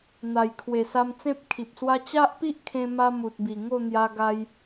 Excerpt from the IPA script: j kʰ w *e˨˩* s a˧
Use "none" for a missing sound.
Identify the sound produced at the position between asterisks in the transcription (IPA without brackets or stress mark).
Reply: e˨˩